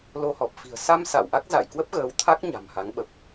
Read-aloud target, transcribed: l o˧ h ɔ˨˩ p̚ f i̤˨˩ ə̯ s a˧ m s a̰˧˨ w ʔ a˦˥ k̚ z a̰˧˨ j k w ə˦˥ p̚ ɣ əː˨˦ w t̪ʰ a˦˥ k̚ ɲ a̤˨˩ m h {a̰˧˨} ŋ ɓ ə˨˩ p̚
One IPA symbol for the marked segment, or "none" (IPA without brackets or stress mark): a˨˦